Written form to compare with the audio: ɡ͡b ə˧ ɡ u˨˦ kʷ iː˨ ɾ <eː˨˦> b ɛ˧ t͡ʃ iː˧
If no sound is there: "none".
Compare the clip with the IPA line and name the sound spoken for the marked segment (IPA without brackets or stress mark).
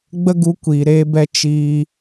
eː˧